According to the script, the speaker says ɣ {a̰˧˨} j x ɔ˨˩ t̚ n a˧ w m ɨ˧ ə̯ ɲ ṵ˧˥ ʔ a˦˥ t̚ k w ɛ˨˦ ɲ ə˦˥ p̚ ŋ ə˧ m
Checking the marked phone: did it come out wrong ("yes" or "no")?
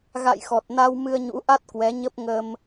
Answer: no